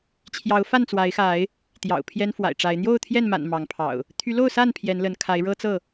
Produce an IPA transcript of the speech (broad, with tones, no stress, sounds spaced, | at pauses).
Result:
t͡ɕʰ j ɑ˨˦ ʊ̯ f a˥˨ n t͡s w a˨˦ ɪ̯ x a˨˦ ɪ̯ | t̪ j ɑ̰˨˩ ʊ̯ pʰ j ɛ˦ n f w a̰˨˩ ɪ̯ ʈ͡ʂ a˨˦ ɪ̯ n̪ j o˥˨ ʊ̯ t̪ʰ j ɛ˥˨ n m a̰˨˩ n m ɑ˨˦ ŋ pʰ ɑ̰˨˩ ʊ̯ | t̪ʰ y˨˦ l o˥˨ ʊ̯ s a˥˨ n pʰ j ɛ˨˦ n l ə˨˦ n kʰ a˨˦ ɪ̯ ɻ ɤ˦ t͡s ɤ˥˨